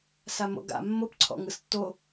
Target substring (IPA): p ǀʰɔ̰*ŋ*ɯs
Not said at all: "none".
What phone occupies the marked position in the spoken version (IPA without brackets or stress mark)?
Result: ŋ